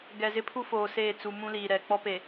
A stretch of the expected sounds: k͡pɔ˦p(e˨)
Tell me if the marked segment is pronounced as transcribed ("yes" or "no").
yes